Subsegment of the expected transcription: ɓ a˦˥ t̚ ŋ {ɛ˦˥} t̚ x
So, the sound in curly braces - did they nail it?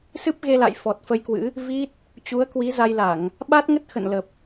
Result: no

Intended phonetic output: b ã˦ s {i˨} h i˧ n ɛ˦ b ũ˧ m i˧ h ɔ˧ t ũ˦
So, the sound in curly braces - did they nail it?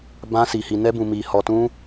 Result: no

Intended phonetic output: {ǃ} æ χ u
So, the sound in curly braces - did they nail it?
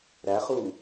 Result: no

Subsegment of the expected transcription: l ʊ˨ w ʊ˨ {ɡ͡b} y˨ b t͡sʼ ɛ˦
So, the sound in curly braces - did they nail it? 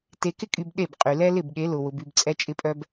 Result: no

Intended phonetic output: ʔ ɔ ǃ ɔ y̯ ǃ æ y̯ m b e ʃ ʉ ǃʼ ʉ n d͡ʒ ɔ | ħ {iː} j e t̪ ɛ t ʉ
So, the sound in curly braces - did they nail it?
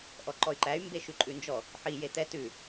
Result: no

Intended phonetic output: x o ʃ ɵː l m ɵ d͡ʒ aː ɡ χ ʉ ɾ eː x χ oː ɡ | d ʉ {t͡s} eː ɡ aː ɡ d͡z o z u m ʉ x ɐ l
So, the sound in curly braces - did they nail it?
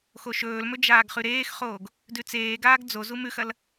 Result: yes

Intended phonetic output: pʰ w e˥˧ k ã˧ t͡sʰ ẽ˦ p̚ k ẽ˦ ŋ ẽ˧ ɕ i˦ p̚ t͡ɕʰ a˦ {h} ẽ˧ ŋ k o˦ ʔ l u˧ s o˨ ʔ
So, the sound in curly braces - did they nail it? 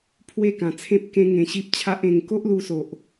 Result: no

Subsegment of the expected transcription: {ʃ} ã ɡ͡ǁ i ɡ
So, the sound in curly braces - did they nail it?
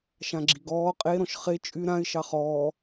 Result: yes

